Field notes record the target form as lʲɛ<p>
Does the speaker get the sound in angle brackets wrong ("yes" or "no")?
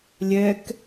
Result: yes